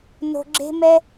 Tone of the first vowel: low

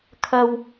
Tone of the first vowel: low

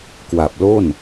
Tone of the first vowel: low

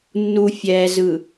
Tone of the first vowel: low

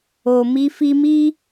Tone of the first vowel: low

